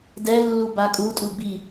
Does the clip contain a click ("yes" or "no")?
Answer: no